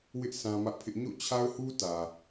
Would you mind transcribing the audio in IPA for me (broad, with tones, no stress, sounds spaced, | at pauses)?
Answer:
w ɪ˦ ʔ sʰ ã˦ m ä˦ ʔ pʰ ɪ˦ ʔ ɲ o̰˦˨ t͡ɕʰ a˦ ʊ̯ h u˦ t ä˨